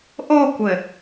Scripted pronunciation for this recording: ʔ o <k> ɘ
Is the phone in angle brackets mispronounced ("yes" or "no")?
yes